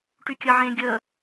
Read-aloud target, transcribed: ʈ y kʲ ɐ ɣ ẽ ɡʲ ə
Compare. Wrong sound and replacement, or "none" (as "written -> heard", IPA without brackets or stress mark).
ɣ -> ʕ